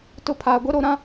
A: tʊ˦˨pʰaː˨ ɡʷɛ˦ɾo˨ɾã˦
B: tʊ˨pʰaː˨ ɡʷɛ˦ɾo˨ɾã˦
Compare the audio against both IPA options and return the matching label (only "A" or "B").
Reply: A